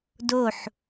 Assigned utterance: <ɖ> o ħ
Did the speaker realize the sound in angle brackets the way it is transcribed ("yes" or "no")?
no